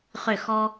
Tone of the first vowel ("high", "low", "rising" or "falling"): falling